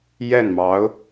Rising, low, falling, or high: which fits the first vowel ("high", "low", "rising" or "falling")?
falling